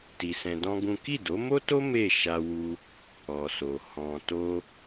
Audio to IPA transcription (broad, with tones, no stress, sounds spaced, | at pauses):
t i˧ s ɛ̃˧ d ɔ̃˦ ɡ ũ˦ k i˦˨ d o˨˦ m o˦ t o˦ m e˦˨ ʃ a˧ w u˧ | ɔ˨ s o˨ h ɔ̃˨ t o˧